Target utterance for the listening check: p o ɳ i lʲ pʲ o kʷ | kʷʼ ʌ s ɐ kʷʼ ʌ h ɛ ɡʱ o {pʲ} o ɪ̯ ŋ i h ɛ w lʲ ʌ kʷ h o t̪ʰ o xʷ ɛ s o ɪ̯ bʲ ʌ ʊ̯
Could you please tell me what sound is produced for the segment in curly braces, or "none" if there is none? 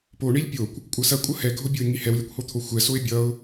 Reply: bʲ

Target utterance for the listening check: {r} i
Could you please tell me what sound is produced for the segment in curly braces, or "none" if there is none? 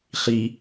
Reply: χ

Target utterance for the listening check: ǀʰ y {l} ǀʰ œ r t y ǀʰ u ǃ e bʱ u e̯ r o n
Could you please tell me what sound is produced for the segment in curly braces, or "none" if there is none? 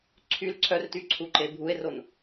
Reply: l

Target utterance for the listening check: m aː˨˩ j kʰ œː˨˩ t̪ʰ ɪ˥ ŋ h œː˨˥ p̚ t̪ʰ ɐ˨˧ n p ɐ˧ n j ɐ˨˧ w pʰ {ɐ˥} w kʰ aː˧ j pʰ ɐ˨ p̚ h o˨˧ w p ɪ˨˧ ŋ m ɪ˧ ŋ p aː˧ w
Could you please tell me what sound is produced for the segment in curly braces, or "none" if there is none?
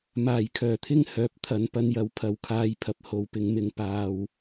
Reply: ɐ˨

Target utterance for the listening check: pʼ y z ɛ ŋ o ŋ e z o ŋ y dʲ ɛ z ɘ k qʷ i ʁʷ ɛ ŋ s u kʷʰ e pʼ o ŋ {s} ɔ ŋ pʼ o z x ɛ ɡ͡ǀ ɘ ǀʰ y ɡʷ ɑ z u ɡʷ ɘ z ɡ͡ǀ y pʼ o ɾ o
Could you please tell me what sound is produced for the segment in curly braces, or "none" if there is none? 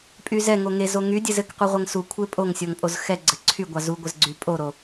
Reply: sʲ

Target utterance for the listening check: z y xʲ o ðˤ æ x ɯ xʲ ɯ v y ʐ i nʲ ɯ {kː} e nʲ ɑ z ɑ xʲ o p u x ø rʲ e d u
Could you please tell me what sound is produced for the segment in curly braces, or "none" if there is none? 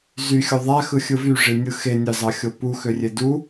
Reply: x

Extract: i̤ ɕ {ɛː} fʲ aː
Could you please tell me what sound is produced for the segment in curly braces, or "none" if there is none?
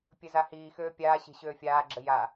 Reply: øː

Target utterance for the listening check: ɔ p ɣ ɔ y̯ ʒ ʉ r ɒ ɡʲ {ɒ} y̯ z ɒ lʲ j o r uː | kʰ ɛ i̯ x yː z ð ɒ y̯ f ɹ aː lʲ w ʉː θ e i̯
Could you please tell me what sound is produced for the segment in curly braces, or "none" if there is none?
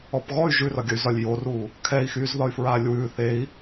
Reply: ʌ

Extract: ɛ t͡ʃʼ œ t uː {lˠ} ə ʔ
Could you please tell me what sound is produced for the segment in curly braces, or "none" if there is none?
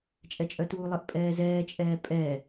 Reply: lˠ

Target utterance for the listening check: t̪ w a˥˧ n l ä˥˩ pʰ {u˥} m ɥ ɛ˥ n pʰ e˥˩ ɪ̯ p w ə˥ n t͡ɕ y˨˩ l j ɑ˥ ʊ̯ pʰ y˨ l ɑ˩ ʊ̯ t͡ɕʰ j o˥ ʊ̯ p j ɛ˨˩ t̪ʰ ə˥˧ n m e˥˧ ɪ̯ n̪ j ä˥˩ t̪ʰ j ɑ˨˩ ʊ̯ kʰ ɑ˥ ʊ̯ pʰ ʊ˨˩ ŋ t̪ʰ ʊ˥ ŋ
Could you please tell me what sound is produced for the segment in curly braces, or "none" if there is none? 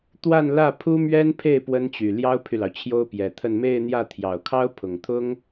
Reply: u˥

